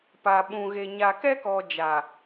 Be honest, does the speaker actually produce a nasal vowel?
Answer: yes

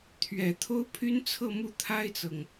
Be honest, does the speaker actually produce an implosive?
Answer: no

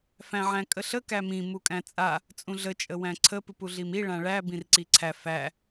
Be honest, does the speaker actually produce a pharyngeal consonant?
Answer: yes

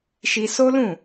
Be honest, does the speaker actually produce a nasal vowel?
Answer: yes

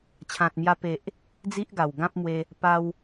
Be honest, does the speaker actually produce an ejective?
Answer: no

